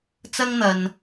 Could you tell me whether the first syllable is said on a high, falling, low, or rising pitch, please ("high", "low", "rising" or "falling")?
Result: high